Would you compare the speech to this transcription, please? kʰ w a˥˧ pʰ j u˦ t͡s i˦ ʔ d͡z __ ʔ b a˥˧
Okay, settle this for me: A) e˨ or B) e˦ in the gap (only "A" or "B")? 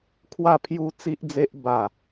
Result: B